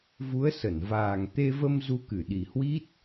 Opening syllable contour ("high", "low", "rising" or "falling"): rising